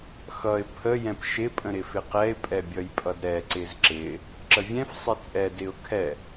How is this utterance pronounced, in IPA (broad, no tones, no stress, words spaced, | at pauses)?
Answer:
xʌɪ̯ pʰə jɛ̃pʃɪ pʼə̃ɾɪfɪqɛɪ̯ pʼɛbʲʌjpʼʌdɾɛ ǀɪzǁɪ | ǁəvʲɛ̃f sˤɪt͡sʼɛ dɪʊ̯kʰɛ